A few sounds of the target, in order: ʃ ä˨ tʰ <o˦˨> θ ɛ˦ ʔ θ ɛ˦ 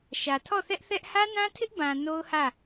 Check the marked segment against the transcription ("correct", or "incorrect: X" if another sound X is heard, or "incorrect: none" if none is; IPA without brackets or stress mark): incorrect: ɔ˦˨